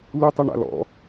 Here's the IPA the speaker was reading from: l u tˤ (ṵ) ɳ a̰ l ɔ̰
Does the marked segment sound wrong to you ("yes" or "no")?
yes